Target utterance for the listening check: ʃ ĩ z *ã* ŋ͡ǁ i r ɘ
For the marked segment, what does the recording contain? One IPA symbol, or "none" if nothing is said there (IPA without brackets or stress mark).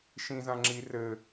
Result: ã